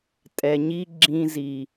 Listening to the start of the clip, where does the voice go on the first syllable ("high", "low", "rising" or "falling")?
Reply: low